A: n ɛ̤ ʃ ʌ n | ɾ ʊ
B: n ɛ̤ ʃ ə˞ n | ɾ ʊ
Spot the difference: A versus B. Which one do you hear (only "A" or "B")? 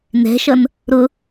A